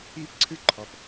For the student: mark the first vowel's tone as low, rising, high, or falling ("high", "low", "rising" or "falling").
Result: high